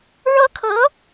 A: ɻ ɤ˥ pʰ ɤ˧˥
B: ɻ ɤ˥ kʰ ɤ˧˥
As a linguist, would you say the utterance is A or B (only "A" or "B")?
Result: B